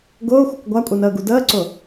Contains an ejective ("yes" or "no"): yes